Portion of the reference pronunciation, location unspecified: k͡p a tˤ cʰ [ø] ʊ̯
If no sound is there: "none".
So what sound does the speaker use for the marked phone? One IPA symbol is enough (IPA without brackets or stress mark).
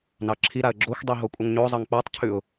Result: ʉ